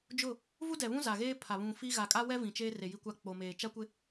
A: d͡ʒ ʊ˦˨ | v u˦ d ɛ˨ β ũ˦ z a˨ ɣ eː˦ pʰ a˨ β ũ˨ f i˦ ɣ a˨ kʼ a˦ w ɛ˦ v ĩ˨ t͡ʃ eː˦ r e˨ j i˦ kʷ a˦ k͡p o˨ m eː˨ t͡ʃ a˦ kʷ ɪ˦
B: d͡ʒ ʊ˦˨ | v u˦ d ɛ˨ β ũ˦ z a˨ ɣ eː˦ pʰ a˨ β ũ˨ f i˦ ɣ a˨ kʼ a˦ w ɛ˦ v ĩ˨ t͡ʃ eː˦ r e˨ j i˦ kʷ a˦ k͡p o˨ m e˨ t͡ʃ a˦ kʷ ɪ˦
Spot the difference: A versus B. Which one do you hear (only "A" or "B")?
A